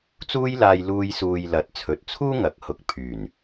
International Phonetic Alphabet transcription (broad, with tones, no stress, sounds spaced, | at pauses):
t͡s uː˧ j l aː˨ j l uː˧ j s uː˨ j l ɐ˨˥ t̚ t͡sʰ ɵ˨ t̚ t͡sʰ uː˥ ŋ ɐ˨˥ k̚ h ʊ˨ k̚ pʰ yː˨˩ n